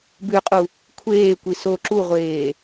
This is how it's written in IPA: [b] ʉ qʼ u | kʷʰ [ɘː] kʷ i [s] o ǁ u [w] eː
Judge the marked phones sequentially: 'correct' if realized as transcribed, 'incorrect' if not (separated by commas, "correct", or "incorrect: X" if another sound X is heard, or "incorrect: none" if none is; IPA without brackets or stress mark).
correct, incorrect: eː, correct, incorrect: ʁʷ